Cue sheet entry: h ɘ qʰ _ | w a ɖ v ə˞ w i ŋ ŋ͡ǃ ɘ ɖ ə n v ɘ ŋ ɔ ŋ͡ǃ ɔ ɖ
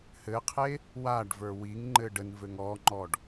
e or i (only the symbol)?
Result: e